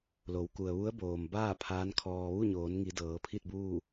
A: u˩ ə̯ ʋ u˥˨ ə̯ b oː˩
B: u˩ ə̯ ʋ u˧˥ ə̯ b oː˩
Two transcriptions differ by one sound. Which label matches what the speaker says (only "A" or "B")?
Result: B